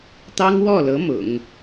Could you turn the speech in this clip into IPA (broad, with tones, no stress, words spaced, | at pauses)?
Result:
t̪ɑ˥ŋwɔ˥˩lɤ˧˥ mʊ̰˨˩˦ŋ